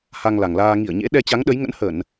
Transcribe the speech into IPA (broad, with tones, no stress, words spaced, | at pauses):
ha˧ŋla˨˩ŋlaː˧ ŋi˧˩ə̯ɲḛ˧˥ ɗɛ˧t͡ɕa˨˦ŋɗə˨˦jŋə̰˧˥n hə˧˩˨n